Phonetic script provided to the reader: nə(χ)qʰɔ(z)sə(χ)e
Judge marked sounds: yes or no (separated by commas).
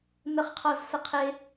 yes, yes, no